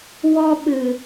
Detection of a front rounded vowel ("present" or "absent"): absent